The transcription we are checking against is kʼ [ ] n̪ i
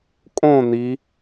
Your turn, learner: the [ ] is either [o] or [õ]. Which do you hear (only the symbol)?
õ